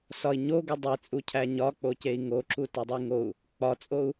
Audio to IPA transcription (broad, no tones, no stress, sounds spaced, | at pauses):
s ɒ i̯ ɲ o ɡ u dˤ i t͡sʼ u cʰ æ ɲ ɒ k͡p o c e i̯ ŋ o ǁ u t e dˤ i ŋ o u̯ | k͡p ɒ t͡sʼ o u̯